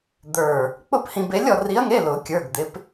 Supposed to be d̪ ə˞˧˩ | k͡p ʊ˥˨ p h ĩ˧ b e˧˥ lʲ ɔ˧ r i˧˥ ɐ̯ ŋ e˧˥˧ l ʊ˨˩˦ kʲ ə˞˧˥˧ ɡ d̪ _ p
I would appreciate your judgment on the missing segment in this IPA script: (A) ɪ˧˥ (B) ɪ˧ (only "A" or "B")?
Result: A